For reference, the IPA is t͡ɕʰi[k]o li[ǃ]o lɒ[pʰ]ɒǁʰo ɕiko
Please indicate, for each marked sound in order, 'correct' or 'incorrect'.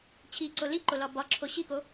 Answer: incorrect: ǀ, correct, incorrect: b

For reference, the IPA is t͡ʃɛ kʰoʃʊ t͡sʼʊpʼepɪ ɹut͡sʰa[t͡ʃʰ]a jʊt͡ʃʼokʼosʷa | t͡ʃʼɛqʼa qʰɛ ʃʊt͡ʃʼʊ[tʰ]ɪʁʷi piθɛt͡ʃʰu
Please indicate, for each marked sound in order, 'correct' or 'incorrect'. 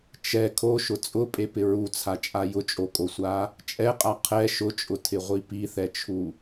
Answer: incorrect: t͡ʃʼ, correct

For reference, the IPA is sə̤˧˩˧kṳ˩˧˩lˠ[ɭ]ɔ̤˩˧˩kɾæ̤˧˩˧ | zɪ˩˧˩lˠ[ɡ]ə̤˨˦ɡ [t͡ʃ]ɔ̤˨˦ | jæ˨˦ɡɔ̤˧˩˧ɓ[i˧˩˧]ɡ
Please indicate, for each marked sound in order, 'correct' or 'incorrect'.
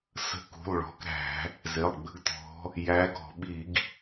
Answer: correct, incorrect: ɡ͡b, incorrect: t̪, correct

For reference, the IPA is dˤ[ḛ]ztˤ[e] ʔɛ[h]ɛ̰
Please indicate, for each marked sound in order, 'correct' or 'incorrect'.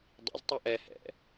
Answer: incorrect: ḭ, incorrect: i, correct

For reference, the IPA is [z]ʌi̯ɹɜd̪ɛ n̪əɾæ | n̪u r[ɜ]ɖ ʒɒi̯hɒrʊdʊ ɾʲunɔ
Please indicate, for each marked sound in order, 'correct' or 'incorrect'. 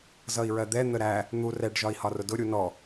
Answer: correct, incorrect: ɛ

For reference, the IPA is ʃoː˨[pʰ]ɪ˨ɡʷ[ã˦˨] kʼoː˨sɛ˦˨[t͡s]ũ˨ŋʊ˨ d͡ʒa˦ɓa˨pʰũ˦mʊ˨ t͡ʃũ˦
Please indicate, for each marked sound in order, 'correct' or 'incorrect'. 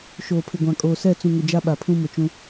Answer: correct, incorrect: ã˨, correct

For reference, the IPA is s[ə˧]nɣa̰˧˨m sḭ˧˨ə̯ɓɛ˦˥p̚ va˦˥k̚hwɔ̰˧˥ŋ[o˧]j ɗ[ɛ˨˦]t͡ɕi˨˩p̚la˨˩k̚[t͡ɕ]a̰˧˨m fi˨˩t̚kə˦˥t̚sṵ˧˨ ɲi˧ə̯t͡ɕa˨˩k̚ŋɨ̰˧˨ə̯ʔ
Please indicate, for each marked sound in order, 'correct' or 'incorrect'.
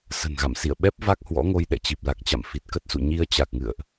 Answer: incorrect: ə̤˨˩, correct, incorrect: ɛ̰˧˨, correct

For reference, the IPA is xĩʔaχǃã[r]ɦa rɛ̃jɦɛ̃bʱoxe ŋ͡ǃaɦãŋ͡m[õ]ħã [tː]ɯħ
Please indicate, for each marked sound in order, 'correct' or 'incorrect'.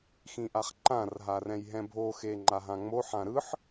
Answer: correct, incorrect: o, incorrect: ɾ

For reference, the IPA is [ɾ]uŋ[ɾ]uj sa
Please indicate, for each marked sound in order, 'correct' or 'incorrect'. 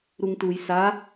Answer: correct, incorrect: t

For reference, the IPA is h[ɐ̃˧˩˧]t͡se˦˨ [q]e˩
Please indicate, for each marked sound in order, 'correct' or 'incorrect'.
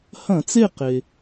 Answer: correct, correct

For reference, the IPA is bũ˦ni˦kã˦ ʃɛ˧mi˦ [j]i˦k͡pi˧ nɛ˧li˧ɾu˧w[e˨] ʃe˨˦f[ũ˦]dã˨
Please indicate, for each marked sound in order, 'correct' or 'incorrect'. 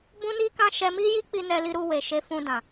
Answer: correct, correct, incorrect: ũ˧

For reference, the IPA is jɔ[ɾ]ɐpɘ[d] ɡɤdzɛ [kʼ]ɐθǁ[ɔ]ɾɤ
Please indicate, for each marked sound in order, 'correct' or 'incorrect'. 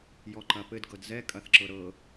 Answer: incorrect: ǃ, correct, correct, incorrect: ɤ

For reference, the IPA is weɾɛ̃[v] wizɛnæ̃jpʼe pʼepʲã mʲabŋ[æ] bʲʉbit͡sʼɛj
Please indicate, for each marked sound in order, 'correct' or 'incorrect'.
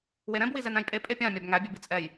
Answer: incorrect: b, correct

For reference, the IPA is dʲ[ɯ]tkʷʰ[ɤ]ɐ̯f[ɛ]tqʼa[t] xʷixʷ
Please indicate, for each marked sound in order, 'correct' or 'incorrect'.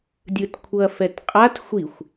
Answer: correct, correct, correct, correct

